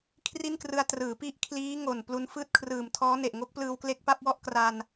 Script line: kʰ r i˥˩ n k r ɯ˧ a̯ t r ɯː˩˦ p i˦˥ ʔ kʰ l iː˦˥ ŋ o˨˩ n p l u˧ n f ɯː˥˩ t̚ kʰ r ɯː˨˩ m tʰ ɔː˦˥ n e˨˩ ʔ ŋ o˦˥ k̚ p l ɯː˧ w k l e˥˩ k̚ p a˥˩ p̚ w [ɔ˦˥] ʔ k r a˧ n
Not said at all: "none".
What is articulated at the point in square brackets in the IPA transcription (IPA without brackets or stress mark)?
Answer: ɔ˥˩